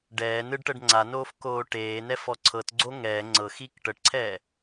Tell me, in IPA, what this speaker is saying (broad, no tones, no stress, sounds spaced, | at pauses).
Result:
ɖ ɛː n ɯ ɖ ʈ ɤ ɖ ŋ͡ǀ a n oː f k oː ʈ eː n ɛ f ɔ ǀʰ ɤ t ɡ͡ǀ o ŋ ɛː ŋ͡ǀ ɤ x iː k ʈ ɤ ʈ ǀʰ ɛː